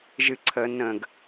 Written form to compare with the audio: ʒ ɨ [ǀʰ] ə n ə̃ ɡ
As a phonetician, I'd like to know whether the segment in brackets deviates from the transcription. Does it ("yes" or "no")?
no